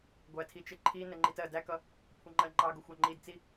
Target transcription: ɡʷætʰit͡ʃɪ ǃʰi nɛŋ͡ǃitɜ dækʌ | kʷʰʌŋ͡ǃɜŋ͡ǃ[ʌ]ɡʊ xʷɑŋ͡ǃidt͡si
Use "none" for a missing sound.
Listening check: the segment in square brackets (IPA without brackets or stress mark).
ɑ